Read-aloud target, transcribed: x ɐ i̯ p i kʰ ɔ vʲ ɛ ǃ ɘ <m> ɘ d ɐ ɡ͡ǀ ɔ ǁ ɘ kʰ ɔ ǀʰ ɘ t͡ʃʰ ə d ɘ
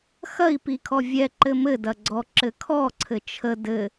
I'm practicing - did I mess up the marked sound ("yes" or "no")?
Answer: no